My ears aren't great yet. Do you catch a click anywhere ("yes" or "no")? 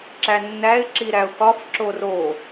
yes